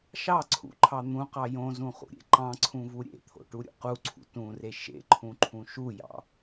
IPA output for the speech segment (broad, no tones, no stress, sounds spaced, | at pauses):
ʃ ɑ ǀʰ ṵ ǃʰ ɑ n̪ ũ q ɑ j õ z ũ χ ṵ ɾʲ ḛ ǃ ɑ̃ ǀʰ ũ v u ɾʲ ḛ t̪ʰ o̰ ʈ u ɾʲ ṵ q u ǀʰ ṵ t ũ r e ʃ ḛ ǃʰ ũ ǃʰ ũ ʃ u j ɑ̰